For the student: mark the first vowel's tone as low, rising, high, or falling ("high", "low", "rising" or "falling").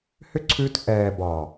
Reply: high